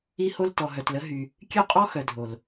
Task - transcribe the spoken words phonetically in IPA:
i˧ h o˧ l t ɔ˨ ɦ œ˨ t l ə˨˦ ɦ y˧ | kʲ ø˦ qʼ ɔ˦ x œ˨ dʱ o˨ l

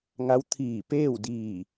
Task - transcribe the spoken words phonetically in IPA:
ŋ a˧˥ w t̪ʰ iː˧˩ p eː˥˨ w d iː˧˩

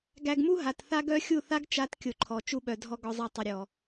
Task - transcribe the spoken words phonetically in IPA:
ɡ æ˧ ɡ m u˦ ɦ a˨ t θ a˦ ɡ œ˦ xʲ u˦˨ θ a˦ ɡ t͡ʃ a˦ t kʲ ʊ˧ ǃʰ ɔ˨ t͡ʃ u˧ ɓ œ˨ dʱ ɔ˧ ɡ ɔ˧ zˤ a˧ tˤ ʊ˧ ɾʲ ɔ˨

